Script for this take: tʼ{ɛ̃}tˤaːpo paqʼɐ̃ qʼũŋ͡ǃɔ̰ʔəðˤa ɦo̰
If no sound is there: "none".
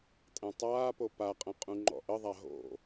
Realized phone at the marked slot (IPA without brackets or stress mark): ɛ̃